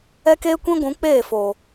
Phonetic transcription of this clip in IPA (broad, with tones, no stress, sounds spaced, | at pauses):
ɛ˦ k eː˦ kʷ ĩ˦ ɡʷ ũ˨˦ k͡p eː˦˨ f o˨